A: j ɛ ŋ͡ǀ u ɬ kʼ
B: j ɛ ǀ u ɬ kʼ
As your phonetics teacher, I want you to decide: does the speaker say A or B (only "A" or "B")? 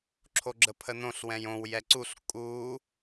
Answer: B